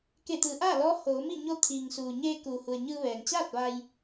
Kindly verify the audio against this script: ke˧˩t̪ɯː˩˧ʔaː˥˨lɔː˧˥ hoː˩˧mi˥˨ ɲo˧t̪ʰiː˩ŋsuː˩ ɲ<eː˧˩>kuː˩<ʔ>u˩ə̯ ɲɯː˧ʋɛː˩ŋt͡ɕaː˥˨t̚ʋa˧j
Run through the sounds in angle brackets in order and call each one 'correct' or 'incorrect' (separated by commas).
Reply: incorrect, incorrect